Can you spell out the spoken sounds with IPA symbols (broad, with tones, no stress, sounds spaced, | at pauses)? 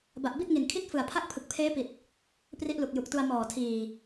b a˨˩ ʔ b i˥˩ t̚ ŋ i˨˩ n kʰ i˥˩ t̚ f ɯ˨˩ a̯ pʰ a˥˩ k̚ pʰ ɯ˨˩ k̚ pʰ eː˦˥ p i˨˩ t̚ | p r i˦˥ ʔ l u˨˩ k̚ j u˨˩ k̚ t u˧ a̯ m ɔː˨˩ tʰ iː˨˩